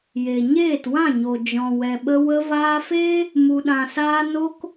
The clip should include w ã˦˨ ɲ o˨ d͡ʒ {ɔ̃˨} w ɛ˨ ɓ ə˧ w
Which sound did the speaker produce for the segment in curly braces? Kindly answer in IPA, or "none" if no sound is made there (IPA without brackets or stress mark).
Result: ɔ̃˨